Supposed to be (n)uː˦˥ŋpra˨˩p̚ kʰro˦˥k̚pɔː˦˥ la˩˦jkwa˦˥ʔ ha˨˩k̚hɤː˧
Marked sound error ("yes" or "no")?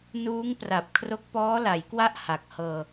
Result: no